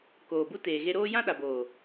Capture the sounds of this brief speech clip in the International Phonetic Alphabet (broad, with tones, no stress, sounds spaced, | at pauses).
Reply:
k oː˨ b u˦ t eː˨ ɣ e˧ ɾ oː˦ j ã˦ ɗ a˨ b oː˨